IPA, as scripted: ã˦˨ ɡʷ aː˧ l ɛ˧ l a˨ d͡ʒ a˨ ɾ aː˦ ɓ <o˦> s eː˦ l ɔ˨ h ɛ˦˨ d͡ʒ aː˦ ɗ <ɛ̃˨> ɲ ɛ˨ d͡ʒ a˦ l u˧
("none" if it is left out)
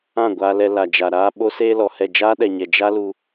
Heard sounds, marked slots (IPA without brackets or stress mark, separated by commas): o˦, ɛ˨